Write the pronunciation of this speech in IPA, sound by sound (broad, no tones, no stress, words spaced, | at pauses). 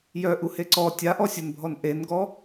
jœʔuhe ǀɔ tʲaʔɔsʲunbʱɔn ʔenɡɔ